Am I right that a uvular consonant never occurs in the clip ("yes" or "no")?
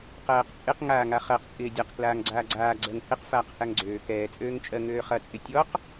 no